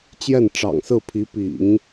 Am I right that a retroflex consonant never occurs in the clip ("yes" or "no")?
no